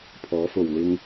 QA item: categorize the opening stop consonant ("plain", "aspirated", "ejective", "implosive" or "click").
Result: aspirated